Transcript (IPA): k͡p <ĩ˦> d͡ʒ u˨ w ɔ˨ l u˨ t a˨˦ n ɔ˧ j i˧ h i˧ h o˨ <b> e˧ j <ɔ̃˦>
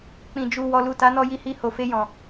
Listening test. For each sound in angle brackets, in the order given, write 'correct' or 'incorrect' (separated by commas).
incorrect, incorrect, incorrect